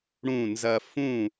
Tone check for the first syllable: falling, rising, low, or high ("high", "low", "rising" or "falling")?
falling